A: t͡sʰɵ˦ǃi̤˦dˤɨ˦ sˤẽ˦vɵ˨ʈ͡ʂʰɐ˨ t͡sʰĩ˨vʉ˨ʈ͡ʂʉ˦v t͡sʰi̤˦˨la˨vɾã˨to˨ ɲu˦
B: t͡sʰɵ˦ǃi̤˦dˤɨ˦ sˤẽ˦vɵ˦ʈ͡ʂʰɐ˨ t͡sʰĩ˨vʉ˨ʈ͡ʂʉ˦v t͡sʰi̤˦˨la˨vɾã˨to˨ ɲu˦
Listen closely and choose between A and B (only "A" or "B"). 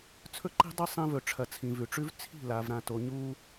A